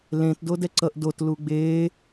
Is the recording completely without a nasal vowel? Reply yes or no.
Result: no